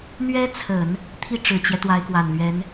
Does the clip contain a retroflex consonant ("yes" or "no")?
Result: yes